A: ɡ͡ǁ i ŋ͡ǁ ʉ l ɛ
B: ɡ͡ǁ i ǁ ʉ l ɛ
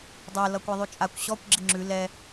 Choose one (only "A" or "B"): A